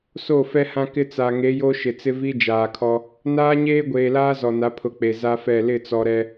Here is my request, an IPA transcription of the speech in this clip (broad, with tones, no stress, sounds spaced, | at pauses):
s o˦˨ f ɛ˦ h ã˦ k ɪ˦ t͡s a˨ ŋ e˨˦ j o˦ ʃ ɪ˨ t͡s ɪ˦ v i˦ d͡ʒ aː˨ kʰ ɔ˦ | n aː˦ ɲ eː˦ ɡʷ eː˨ l aː˦ z ɔ˨ n a˨˦ pʰ ʊ˨˦ k͡p e˨ z a˦ f ɛ˦˨ l ɪ˦˨ t͡s ɔ˨ ɾ ɛ˦